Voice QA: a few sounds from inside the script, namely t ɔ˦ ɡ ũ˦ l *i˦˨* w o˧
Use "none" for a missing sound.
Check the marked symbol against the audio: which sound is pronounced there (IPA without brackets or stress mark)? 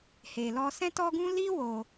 i˦